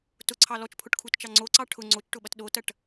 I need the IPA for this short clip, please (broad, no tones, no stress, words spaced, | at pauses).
tʊǀʰɑ lɔt͡ʃpʰʊʈkʰutt͡ʃɑ ŋ͡ǀoǀɑ ʈʰʊ ŋ͡ǀot͡ʃʈʊɓɐt ɗotɐʈ